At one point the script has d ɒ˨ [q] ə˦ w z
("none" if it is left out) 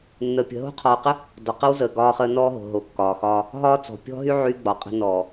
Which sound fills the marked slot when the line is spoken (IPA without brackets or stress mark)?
q